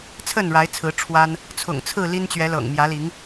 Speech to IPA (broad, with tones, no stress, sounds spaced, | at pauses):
t͡sʰ ə˥˨ n ɻ a˨˦ ɪ̯ t͡sʰ ɹ̩˨˦ ʈ͡ʂʰ w a˦ n | t͡sʰ ʊ̰˨˩ ŋ t͡sʰ ɹ̩˥˨ l i˦ n t͡ɕ ɥ ɛ˨˦ l ɤ̰˨˩ ŋ m j ä˨˦ l i˨˦ ŋ